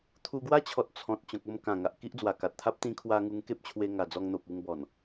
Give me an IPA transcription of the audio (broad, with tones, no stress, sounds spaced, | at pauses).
t̪ʰ u˧ ɡ w a˦ t͡ɕʰ ɔ˨ t̚ t͡sʰ ɔ̃˨ t̚ t͡ɕ ɔ̃˨ k̚ o˥˧ m k ã˨˩ ŋ a˨ ʔ k i˦ ʔ d͡z w a˨˩ k a˨ t̚ t̪ʰ a˦ p̚ t̪ ĩ˧ kʰ w a˧ ŋ u˧ ŋ k e˦ p̚ t͡ɕʰ w e˧ ŋ a˨˩ d͡z ɔ˧ ŋ n̪ o˨ p̚ u˧ ŋ b ɔ˨˩ n